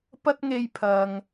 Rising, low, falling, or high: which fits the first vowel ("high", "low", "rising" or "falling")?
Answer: high